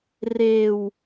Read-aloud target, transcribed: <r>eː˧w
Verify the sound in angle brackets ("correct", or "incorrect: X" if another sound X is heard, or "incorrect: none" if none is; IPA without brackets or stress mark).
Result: correct